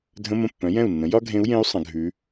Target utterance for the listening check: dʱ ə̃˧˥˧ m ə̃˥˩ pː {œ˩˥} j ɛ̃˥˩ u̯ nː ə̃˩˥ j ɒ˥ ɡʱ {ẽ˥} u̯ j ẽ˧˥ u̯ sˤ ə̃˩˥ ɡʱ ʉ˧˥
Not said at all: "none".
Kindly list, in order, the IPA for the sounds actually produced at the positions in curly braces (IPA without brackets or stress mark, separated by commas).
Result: œ̃˩˥, ẽ˧˥